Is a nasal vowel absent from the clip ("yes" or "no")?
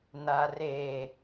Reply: yes